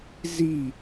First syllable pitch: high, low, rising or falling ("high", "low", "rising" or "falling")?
falling